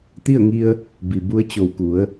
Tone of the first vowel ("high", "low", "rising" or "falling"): falling